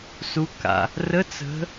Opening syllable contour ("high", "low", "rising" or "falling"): rising